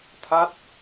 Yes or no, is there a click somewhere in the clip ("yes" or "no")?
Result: no